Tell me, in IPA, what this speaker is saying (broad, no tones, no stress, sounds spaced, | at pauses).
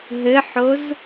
ɦ ɘ ħ o z